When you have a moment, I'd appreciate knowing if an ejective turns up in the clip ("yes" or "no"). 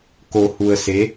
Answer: no